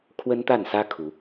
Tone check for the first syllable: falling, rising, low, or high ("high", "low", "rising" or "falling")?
high